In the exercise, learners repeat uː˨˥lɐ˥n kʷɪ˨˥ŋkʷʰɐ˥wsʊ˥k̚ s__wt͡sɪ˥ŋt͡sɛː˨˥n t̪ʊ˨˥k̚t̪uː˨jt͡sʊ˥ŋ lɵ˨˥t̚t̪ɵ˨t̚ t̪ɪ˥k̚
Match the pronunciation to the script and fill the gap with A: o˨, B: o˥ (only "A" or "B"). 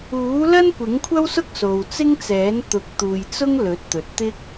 A